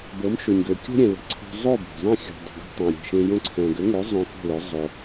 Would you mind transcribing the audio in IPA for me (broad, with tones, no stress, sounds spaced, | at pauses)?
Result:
b ɤ˩˥ m ʃ o˩ ɲ ɡ ø˩ kʲ o̤˥ ɾʲ ɛ̃˩ l ə̤˩˥ ǀʰ o̤˧ zˤ o˥˩ b o̤˩ zˤ ɛ̃˥˩ xʲ o̤˩ dˤ ə̤˩ ɡ o̤˧ tˤ õ˩ ɾʲ e̤˩ ʃ ẽ˧ j õ˧ ǀʰ ɛ̃˩ ɡ ø˩˥ ŋ ø˩˥ zˤ õ˧ f o̤˥˩ l ø˩˥ zˤ o˩